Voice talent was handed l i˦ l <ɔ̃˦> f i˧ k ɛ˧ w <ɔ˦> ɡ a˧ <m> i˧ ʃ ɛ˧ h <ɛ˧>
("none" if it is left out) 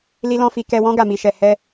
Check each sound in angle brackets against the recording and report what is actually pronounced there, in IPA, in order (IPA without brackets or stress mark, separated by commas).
ɔ̃˦, ɔ̃˦, m, ɛ˦